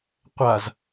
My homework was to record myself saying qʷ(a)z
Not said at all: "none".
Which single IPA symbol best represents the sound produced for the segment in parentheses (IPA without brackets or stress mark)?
a